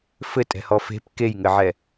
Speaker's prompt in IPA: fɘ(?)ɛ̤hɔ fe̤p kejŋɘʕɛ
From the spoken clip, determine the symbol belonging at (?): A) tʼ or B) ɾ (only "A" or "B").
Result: A